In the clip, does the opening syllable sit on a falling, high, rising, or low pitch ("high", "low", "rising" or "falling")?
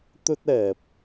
high